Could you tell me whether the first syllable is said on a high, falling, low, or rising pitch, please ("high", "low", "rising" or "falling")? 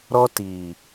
high